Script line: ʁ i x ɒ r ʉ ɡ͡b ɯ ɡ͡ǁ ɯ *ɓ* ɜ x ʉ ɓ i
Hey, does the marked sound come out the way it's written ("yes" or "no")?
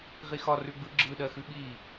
no